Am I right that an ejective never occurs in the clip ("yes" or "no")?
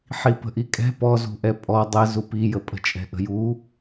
no